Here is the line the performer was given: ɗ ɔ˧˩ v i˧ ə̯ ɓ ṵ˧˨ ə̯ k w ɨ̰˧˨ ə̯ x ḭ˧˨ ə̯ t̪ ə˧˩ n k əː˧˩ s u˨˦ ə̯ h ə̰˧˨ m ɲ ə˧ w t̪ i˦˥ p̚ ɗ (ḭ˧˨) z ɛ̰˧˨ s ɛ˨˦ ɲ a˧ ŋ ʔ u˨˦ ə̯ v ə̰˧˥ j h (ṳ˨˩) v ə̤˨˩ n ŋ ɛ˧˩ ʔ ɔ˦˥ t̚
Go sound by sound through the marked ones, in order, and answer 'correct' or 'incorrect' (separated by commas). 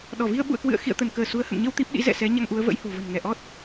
incorrect, incorrect